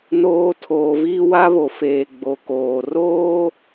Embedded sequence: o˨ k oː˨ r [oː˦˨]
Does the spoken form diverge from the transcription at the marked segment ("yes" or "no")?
yes